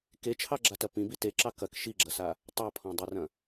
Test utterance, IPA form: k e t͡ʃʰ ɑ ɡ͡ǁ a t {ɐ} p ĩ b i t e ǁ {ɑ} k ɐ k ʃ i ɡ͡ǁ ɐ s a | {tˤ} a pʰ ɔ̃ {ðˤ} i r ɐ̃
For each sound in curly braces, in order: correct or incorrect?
correct, correct, correct, incorrect: dˤ

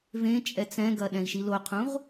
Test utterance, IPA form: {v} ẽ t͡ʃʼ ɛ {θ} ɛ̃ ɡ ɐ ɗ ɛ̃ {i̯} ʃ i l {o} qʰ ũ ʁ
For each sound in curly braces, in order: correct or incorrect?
correct, incorrect: t͡s, correct, correct

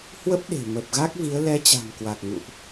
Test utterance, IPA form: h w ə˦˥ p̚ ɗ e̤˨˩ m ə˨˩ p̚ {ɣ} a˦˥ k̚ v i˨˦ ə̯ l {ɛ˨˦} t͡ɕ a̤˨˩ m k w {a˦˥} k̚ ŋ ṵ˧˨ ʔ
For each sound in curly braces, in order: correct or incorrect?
correct, correct, incorrect: a˨˩

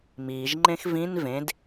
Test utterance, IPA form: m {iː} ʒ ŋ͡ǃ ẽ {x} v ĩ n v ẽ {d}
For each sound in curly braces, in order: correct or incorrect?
correct, correct, correct

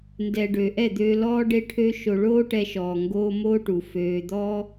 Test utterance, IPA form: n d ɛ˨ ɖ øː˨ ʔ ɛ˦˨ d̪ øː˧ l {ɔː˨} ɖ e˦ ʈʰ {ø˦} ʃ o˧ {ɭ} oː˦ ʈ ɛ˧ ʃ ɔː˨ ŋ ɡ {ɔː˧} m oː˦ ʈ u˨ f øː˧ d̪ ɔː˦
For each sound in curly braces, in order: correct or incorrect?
incorrect: ɔː˦, correct, correct, incorrect: oː˧

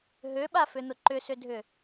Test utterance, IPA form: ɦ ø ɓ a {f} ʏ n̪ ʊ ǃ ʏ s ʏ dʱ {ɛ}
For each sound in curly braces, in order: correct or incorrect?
correct, incorrect: ʏ

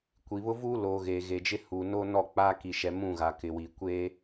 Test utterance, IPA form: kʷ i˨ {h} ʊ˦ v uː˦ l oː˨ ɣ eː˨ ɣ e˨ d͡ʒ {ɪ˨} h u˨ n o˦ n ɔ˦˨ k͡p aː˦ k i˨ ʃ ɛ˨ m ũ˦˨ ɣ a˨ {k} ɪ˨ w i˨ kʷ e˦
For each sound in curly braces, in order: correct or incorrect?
incorrect: β, incorrect: ɪ˦, correct

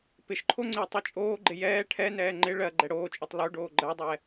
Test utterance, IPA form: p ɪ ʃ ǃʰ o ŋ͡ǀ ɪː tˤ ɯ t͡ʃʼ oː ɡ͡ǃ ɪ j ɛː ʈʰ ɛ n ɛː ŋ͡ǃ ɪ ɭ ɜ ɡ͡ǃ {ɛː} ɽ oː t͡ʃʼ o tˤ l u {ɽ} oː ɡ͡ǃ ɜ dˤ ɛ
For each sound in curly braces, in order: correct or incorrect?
incorrect: ɛ, incorrect: ɖ

